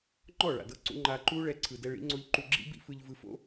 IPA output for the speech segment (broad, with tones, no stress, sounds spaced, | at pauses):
ŋ͡ǃ ɔ˦˨ ɭ a̰˨ d ɤ˧ ǀ ṵ˧ ŋ͡ǃ a˧ ǃ u˦ ɭ ɛ˧ ǀʰ ɯ˨ d ɛ˧ ɭ ḭ˨˦ ŋ͡ǀ o˧ ʎ ǃ u˧ ɡ͡ǁ ḭ˦ b ḭ˦ f ɯ˧ ʎ v ɯ˧ f o̰˦